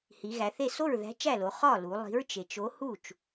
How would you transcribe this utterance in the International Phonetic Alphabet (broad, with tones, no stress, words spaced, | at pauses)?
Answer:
hi˩˧ɣæ˩˧θe˥˩ so˥˩ɹðæ̤˨˥t͡ʃæ˥˩lo˩˧ χɒ˥˩lu˩˧lˠi̤˨˥ɹ t͡ʃe˩˧t͡ʃo˨˥ hu˥˩t͡ʃ